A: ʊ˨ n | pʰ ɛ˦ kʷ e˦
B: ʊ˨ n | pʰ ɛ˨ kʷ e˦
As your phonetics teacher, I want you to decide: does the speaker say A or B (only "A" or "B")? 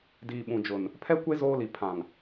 A